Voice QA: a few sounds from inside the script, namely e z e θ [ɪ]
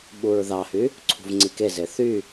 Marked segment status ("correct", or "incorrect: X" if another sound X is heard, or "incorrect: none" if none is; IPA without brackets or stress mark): incorrect: y